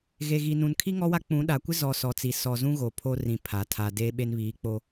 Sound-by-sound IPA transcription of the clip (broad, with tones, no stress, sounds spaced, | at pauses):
ɣ e˨ ɣ i˨ n ũ˨ n kʰ i˦ ŋ ɔ˦ w a˦ k͡p ũ˨˦ ɗ a˨ kʷ ɪ˦ z ɔ˨ s ɔ˨ t͡s i˨ s ɔ˨ z ũ˦ ɣ o˨ pʰ o˦ r ĩ˨ pʰ a˨ tʰ a˨ d e˦ ɓ e˦ n β iː˨˦ k͡p o˦